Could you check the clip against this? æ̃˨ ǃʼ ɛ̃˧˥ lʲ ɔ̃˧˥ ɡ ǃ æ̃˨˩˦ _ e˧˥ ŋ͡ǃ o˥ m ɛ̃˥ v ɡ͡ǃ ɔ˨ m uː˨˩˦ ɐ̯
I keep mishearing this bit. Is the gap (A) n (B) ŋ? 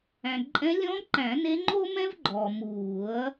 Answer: A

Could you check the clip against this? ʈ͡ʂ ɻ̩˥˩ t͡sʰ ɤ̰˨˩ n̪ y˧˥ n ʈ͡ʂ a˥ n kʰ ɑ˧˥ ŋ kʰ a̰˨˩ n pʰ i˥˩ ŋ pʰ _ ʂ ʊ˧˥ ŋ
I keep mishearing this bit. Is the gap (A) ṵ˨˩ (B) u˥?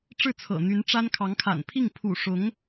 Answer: A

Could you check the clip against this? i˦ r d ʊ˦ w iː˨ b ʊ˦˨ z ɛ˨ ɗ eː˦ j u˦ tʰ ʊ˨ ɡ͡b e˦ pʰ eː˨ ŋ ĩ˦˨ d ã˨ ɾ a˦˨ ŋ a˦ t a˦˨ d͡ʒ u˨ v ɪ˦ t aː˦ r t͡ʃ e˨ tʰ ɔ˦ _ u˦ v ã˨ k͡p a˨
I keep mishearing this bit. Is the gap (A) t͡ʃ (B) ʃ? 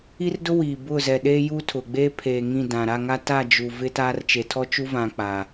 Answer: A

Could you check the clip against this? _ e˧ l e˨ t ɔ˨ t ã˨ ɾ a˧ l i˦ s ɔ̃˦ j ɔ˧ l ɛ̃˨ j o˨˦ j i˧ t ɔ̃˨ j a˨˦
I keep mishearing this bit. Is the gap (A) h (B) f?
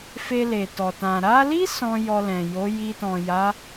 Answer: B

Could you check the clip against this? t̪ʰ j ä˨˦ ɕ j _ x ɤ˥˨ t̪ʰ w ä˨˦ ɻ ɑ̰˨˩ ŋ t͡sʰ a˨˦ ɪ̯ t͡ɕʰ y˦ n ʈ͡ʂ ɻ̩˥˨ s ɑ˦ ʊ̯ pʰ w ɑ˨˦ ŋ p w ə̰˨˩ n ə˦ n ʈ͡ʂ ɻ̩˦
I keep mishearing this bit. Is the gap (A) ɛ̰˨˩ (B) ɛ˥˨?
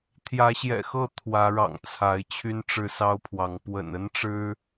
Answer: A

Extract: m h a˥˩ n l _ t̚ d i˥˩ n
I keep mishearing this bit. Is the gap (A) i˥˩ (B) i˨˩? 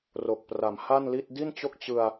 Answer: A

